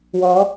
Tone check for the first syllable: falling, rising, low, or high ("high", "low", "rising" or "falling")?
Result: rising